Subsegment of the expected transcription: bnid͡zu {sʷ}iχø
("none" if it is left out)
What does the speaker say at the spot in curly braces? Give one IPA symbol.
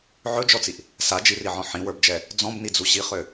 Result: ɕ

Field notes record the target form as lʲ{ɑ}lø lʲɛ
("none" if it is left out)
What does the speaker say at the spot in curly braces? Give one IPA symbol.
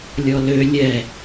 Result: ɔ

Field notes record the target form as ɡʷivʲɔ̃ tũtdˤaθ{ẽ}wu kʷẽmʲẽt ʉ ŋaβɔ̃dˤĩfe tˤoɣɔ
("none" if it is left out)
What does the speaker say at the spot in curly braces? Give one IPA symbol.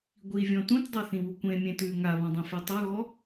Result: ĩ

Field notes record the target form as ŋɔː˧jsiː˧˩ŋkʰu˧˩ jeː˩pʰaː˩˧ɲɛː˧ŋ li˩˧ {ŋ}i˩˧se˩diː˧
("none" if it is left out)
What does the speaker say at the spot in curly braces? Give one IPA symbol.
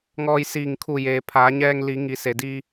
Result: ŋ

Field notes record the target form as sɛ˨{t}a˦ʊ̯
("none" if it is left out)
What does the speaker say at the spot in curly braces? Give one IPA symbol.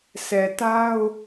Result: t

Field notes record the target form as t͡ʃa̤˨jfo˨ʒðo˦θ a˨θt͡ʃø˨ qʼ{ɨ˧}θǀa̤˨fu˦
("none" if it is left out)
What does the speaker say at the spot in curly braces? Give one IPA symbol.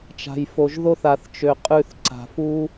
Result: ʉ˧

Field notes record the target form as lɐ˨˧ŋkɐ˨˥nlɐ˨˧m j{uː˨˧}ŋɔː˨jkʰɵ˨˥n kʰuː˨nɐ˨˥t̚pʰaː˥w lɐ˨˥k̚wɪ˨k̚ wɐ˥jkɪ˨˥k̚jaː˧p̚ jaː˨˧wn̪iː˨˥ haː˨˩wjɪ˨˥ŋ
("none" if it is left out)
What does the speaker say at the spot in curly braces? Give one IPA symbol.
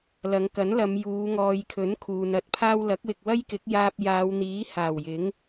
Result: uː˨˧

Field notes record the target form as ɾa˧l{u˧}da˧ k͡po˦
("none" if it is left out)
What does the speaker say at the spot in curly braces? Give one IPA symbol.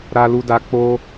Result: u˧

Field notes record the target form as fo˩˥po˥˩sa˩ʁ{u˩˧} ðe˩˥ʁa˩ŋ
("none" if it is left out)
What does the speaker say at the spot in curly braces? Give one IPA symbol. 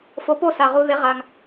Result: u˩˧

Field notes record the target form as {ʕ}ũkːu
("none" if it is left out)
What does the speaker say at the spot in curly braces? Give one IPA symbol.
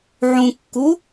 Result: ʕ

